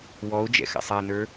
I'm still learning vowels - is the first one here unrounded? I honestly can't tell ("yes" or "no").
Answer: no